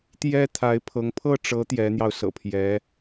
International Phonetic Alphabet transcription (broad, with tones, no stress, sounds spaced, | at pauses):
t̪ j ɛ˥ t̪ʰ a˧˥ ɪ̯ pʰ ɤ˧˥ ŋ pʰ ɤ˥˩ ʈ͡ʂ ɤ˧˥ t̪ j ɛ˧˥ n̪ j ɑ˧ ʊ̯ s ɤ̰˨˩ pʰ j ɛ˧˥